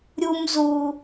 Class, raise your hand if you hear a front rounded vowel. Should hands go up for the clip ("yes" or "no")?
no